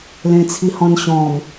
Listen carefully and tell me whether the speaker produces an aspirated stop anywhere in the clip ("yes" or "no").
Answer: yes